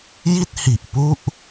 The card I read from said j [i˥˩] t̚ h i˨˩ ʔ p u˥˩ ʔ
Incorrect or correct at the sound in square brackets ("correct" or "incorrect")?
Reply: correct